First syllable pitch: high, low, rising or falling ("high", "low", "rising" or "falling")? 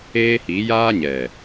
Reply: high